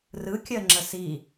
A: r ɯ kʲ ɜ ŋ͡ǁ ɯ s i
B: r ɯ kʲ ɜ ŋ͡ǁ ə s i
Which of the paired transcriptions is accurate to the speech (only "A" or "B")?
B